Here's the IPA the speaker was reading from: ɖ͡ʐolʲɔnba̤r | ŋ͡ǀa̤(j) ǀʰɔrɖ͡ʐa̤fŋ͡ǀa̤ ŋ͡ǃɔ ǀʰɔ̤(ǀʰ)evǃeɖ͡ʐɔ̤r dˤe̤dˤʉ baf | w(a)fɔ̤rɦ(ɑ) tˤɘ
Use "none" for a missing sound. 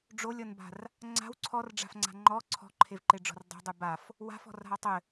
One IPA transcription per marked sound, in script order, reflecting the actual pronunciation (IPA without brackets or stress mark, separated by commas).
w, ǃʰ, a̤, a